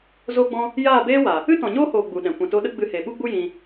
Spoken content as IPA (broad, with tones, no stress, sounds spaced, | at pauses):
z o˦ ɡ͡b ɔ̃˦ | j aː˦˨ b eː˦ w a˨ | ɨ˦ t ɔ̃˨ ɲ oː˦ h oː˨ ɡ͡b u˨ ɗ ɛ̃˨ kʷ ɛ̃˨ t o˧ ɗ ə˦ ɡ͡b ɨ˧ h e˨ ɓ u˦ ɡ͡b u˦ j ĩ˧